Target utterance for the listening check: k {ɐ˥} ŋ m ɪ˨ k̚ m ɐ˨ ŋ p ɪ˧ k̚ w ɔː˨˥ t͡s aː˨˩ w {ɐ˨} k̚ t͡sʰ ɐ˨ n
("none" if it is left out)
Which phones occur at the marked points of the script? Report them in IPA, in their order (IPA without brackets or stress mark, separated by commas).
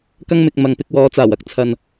ɐ˥, ɐ˥